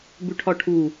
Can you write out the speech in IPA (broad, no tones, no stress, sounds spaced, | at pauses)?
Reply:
b ʉ ʈʰ ɒ ʈʰ u